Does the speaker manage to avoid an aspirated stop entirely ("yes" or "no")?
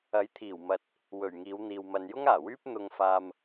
no